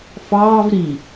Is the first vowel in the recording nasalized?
no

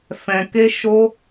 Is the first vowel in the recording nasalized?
yes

